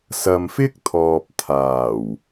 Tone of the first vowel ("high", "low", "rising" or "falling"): low